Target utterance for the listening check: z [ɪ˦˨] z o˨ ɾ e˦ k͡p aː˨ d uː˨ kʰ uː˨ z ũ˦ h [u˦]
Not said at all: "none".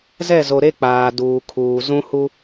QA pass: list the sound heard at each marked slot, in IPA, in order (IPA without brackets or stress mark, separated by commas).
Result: ɛ˦˨, u˦